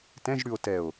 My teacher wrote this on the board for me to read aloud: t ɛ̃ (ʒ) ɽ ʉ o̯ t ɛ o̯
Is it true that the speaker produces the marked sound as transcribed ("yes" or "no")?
yes